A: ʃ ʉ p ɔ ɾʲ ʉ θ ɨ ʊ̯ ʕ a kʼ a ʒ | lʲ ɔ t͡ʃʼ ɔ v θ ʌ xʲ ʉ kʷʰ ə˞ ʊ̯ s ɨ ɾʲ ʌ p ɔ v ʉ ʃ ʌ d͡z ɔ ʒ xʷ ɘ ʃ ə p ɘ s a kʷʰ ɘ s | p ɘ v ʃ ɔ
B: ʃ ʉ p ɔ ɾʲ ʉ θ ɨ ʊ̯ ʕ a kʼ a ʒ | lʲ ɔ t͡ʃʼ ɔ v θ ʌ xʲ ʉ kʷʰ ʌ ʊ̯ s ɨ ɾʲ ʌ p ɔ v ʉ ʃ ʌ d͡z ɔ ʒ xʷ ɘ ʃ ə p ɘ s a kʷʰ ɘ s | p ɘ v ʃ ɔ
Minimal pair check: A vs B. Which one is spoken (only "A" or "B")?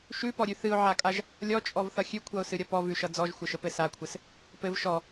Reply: B